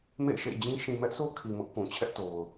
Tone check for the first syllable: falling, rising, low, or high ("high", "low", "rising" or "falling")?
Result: falling